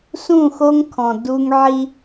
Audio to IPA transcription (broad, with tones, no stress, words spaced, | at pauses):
sũ˦˨xo˦ŋkʰɔ̃˨ du˦ŋ ʕi˦